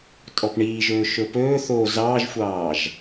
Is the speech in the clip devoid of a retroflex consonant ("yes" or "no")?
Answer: no